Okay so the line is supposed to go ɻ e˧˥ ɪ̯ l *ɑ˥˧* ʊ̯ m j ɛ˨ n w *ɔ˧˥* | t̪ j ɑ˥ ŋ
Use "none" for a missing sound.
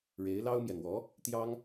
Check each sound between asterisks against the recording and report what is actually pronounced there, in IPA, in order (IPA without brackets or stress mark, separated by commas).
ɑ˥, ɔ˧˥